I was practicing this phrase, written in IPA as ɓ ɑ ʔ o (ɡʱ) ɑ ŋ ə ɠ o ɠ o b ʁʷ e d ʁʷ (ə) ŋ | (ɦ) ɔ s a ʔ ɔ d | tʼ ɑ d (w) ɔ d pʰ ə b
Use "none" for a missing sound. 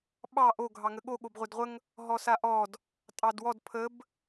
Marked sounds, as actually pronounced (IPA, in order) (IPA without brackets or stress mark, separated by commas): ɡʱ, ə, ɦ, w